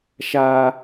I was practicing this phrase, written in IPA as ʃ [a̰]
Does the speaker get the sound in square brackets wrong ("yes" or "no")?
yes